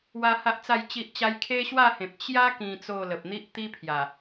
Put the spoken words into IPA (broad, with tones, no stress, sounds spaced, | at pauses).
w a˦ h a˦ ʔ t͡s a˥˧ j t͡ɕ i˦ ʔ t͡ɕ a˦ j kʰ e˦ ɕ w a˥˧ h ẽ˨ p̚ t͡ɕ j a˦ k ĩ˧ t͡s o˥˧ l ə˨ p̚ n̪ i˦ ʔ t̪ i˦ pʰ j a˨˩